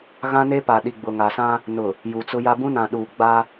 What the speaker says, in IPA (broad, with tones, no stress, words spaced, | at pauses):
ɣã˦ne˦pa˨ɗi˨ ɡ͡bʊ˨ŋa˨sã˦ | nʊ˨ | ju˨t͡sʊ˦ja˦ bũ˦nã˨ ɗu˨ɡ͡ba˦